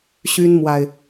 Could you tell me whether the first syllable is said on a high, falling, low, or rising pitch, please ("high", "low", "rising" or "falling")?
high